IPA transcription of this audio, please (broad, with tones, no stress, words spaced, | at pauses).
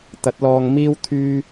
t̪ɐ˨˥t̚lɔː˧ŋ miː˥w t̪ʰyː˥